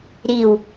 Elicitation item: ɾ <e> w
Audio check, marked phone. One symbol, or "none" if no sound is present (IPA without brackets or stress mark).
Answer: i